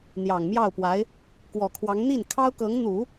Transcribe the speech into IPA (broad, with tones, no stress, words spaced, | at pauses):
n̪jɑ˨˩ŋmjɑ˥˩ʊ̯pwa˧˥ɪ̯ | kwɔ˨˩kʰwɑ˧˥ŋ n̪i˥˩nkʰɑ˥ʊ̯kɤ˧˥ŋn̪u˨˩˦